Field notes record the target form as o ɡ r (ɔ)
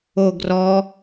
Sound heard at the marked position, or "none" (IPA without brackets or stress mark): ɔ